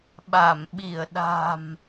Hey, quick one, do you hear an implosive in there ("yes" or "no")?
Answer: yes